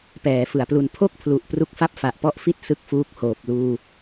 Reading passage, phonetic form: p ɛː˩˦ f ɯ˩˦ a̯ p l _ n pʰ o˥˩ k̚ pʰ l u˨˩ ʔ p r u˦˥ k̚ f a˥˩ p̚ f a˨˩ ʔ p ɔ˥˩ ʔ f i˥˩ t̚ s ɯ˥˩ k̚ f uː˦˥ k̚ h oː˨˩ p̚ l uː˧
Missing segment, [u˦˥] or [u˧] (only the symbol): u˧